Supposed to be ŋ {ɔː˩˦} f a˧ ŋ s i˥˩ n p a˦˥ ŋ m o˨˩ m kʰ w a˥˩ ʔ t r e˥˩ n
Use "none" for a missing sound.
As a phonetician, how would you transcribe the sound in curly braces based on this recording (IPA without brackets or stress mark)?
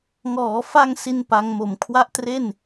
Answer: ɔː˩˦